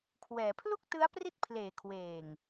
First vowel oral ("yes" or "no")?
yes